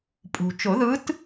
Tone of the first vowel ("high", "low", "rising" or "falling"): low